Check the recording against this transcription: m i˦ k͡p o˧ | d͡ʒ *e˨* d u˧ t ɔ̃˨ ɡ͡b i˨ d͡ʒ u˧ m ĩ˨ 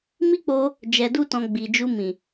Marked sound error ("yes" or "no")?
yes